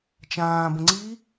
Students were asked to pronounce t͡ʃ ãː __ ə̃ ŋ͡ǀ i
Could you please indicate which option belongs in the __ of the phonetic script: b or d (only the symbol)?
b